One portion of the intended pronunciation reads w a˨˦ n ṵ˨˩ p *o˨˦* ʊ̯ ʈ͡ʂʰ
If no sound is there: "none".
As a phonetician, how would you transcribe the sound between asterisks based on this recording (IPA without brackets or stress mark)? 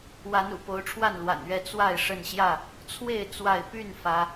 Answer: o˨˦